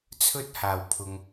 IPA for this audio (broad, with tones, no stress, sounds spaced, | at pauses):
t͡sʰ ɵ˥ t̚ h aː˨˩ w pʰ ʊ˨ ŋ